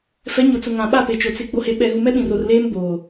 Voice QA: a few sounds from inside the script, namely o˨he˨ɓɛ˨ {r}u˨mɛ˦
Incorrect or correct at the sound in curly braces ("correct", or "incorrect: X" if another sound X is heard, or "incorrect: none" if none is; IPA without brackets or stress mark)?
incorrect: ɣ